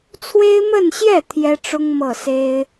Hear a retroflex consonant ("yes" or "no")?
yes